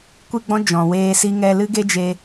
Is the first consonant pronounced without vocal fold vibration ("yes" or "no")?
yes